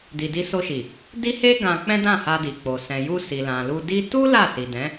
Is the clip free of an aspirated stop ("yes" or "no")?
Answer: yes